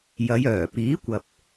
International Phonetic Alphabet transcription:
j ɐ˨˧ j œː˨˩ p iː˨˥ kʷ ɐ˨ p̚

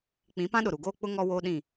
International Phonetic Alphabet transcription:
k͡p ĩ˨˦ p ã˦ ɗ ʊ˨ ɾ u˨ ɡ oː˦ k͡p ʊ˦ ŋ ɔ˦ w oː˦ ɗ ĩ˦˨

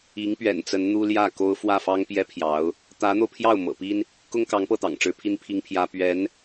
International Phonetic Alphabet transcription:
i˧˥ ŋ p ɥ ɛ̰˨˩ n t͡s ə˧˥ n n̪ u˥ l j ä˥˩ k o˥ ʊ̯ f w ä˥˩ f ɑ˥ ŋ p j ɛ˥ pʰ j ɑ˧˥ ʊ̯ | t̪ ä˧˥ n̪ o˧ ʊ̯ pʰ j ɑ˥˩ ʊ̯ m ɤ̰˨˩ p i˥ n | k ʊ˥ ŋ k ɑ˧˥ ŋ p ɤ˥˩ t̪ ɑ̰˨˩ ŋ ʈ͡ʂ ɻ̩˧˥ pʰ i˥ n pʰ i˥ ŋ pʰ j ä˥ p ɥ ɛ˧˥ n

